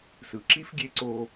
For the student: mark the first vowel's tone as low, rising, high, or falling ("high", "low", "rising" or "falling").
low